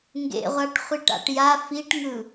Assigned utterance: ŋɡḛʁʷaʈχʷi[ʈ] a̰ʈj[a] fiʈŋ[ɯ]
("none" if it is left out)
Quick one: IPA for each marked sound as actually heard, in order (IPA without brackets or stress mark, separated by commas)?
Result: ʈ, a, ɯ